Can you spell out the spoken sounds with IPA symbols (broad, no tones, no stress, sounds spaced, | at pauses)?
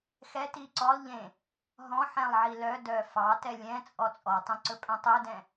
x ɛ t i ǀ ɔ lˠ ʎ ẽ | ɦ ɔ̃ ħ ɛ̃ lˠ ʕ i l œ d œː f ɑ t ɛ lʲ ɛ̃ t͡sʼ ɔ t͡sʼ ɔ tˤ ɛ̃ ǀ ɵ pʼ œ̃ tˤ ɵ d ɛ̃